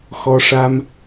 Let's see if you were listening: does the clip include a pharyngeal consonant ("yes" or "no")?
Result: no